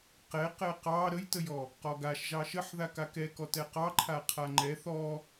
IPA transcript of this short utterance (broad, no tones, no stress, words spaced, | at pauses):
qɛqɛ qɑ ɾəjtəjɔ | qɔɡaʃ ʒɑʃəħða kakɛkɔ tɛqɑ ǃʰaqʰaŋ͡ǃɛ θɔ